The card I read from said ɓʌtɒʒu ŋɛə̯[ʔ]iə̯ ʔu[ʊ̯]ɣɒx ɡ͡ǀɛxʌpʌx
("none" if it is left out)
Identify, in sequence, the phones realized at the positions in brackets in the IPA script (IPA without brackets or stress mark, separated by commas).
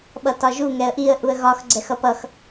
ʔ, ə̯